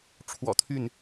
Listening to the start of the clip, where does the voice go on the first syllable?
low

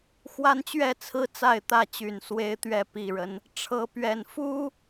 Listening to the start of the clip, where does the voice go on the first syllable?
high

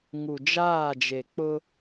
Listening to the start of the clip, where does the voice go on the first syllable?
low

